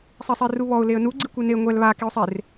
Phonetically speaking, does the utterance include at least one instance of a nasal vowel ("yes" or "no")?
no